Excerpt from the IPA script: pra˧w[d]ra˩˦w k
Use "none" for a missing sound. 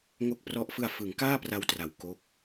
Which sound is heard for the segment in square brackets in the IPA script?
t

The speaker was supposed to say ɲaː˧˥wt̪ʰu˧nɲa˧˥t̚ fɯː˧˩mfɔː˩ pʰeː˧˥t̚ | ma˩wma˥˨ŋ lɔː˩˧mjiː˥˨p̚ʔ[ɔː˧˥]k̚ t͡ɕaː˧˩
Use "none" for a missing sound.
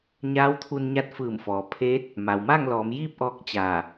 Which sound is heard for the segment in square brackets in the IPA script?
ɔː˧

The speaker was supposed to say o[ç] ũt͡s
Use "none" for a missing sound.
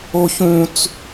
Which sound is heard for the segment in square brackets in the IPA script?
ç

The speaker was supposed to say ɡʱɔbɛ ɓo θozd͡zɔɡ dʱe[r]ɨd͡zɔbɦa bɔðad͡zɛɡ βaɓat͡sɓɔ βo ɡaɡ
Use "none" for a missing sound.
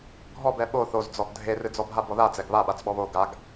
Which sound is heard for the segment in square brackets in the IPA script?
r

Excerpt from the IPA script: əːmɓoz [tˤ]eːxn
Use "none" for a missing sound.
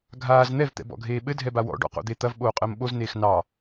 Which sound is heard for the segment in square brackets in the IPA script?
n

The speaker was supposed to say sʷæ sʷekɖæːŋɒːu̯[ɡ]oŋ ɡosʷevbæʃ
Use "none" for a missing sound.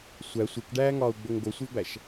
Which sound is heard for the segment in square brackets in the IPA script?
ɡ͡b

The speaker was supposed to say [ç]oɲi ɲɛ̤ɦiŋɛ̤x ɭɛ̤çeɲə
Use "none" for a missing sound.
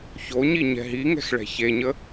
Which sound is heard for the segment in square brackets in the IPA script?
ç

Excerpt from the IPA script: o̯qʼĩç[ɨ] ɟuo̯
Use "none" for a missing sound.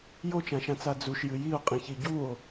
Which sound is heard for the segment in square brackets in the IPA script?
i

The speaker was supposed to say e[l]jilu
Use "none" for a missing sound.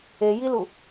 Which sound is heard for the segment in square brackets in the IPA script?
none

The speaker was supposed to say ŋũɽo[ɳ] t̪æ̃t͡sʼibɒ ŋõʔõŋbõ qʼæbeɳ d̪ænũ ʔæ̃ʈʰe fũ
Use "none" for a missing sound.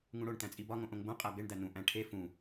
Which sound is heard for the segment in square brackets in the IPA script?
ɳ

